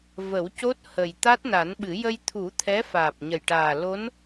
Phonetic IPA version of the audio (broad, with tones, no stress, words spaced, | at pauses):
və˨˩˦wco˦˥t̚ hə˨˩j t̪a˦˥t̚na˨˩˦nɓɨ˨˩˦ jə˧jt̪ʰu˨˩˦ t̪ʰɛ˧˥faː˨˩p̚ɲə˨˩jʈaː˨˩ lo˧˥n